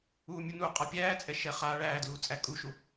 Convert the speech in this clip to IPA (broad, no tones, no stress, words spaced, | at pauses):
uːmʲunu qʼapʲæːt͡sʼɛ ʃɛχa ɭæːdluːt͡sʼæ kʼuʃu